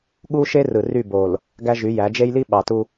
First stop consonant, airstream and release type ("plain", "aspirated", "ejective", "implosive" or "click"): implosive